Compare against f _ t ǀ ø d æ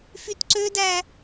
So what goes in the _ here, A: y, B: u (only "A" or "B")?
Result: A